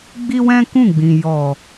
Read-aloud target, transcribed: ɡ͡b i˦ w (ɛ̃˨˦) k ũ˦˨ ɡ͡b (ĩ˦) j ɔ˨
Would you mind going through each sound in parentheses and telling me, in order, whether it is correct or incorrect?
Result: incorrect, incorrect

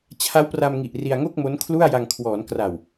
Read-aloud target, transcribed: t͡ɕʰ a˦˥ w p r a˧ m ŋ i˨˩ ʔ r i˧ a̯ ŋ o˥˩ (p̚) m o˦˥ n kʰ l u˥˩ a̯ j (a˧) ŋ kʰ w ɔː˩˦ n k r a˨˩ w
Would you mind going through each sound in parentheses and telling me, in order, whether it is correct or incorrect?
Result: incorrect, correct

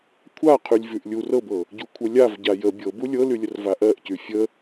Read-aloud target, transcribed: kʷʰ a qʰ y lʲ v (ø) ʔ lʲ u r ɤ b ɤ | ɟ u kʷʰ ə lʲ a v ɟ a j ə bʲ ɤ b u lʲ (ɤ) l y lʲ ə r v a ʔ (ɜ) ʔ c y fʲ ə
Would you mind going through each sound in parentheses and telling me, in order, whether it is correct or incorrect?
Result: incorrect, correct, correct

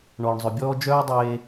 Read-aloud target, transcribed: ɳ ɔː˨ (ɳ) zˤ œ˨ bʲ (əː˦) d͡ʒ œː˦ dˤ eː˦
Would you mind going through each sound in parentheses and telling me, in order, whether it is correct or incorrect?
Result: correct, incorrect

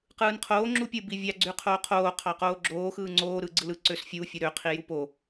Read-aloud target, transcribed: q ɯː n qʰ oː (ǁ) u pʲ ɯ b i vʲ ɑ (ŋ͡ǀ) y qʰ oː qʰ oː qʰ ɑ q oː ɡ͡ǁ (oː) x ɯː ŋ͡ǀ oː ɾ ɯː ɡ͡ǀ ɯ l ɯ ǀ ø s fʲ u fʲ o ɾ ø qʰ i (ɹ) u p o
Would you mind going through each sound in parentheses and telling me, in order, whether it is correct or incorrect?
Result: incorrect, incorrect, correct, incorrect

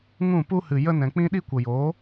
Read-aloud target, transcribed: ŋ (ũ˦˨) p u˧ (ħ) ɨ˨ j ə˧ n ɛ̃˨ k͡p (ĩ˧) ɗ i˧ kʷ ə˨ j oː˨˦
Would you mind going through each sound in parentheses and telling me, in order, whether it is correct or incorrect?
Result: correct, incorrect, correct

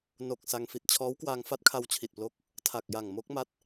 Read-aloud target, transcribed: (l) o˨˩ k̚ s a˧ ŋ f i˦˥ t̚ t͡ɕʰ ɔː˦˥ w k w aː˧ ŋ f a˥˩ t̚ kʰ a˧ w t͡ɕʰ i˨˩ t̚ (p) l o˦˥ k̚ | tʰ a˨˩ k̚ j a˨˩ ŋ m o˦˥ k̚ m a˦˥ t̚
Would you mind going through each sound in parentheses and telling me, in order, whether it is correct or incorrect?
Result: incorrect, correct

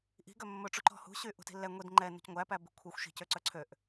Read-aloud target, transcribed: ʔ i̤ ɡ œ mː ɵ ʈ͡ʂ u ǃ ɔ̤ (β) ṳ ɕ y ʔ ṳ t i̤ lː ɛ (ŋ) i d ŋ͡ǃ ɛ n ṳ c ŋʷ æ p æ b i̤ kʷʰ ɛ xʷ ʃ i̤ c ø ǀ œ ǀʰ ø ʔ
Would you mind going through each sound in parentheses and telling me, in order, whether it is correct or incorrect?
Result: incorrect, incorrect

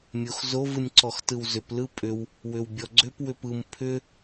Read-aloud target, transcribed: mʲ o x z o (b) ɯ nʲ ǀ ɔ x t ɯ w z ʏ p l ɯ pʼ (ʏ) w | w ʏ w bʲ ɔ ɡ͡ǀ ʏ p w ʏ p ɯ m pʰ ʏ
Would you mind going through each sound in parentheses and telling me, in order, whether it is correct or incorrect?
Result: incorrect, correct

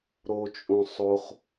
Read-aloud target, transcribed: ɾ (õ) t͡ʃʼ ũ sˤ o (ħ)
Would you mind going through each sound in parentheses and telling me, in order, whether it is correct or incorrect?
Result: incorrect, incorrect

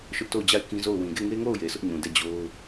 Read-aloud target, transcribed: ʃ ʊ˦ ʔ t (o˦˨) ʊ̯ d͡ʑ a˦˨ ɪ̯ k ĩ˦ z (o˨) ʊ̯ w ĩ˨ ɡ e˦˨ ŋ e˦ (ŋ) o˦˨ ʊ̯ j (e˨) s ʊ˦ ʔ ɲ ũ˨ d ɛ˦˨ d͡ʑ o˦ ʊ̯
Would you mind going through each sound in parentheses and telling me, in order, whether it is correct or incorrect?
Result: correct, incorrect, correct, correct

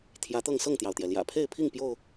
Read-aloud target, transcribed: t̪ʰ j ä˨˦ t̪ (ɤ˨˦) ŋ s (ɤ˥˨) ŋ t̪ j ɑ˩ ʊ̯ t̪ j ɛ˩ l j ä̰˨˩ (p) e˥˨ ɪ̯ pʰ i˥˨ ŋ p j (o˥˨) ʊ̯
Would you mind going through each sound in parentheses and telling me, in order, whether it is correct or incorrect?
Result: incorrect, correct, incorrect, correct

